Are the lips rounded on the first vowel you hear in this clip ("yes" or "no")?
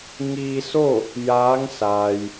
no